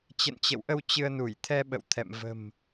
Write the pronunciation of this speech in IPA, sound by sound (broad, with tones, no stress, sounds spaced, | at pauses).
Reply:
t͡ɕ ə̰˧˨ n t͡ɕ ə̰˧˨ w ʔ ə˧ w t͡ɕ ɨ˧ ə̯ n u˧˩ j t̪ʰ ɛ˧ ɓ ə̰˧˨ w t̪ʰ ɛ̰˧˨ m v ə̤˨˩ m